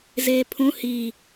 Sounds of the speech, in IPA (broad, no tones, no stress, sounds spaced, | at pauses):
z eː pʰ ũ h i